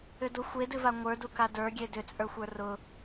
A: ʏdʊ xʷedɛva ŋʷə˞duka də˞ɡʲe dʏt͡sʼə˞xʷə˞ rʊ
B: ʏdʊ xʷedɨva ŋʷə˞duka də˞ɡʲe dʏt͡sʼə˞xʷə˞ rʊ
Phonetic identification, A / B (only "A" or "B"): B